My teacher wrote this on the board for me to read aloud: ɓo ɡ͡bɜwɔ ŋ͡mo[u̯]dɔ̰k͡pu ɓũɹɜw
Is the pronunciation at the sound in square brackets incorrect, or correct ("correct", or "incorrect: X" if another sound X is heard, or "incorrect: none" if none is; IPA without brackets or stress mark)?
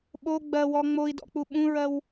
incorrect: i̯